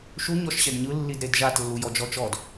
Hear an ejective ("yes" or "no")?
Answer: no